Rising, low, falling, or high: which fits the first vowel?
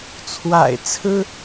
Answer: low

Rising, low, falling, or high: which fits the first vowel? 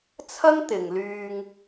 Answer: high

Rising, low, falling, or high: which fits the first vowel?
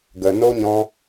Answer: low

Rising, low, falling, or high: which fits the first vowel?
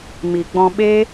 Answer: low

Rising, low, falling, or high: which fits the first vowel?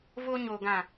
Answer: high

